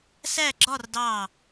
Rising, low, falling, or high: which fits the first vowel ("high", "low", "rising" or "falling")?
falling